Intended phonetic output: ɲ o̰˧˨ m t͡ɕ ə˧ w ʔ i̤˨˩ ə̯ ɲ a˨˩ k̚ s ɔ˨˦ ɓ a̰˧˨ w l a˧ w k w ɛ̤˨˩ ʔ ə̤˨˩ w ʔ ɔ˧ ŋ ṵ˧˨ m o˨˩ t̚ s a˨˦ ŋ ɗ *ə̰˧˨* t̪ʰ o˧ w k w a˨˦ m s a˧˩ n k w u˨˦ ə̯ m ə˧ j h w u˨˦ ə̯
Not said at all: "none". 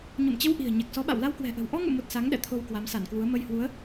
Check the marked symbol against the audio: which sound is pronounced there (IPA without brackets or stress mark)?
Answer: ɛ̰˧˨